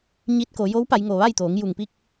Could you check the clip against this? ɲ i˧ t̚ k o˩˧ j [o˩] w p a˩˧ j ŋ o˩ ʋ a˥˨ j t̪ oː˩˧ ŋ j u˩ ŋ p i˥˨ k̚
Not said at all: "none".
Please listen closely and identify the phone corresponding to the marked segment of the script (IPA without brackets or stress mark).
o˧˥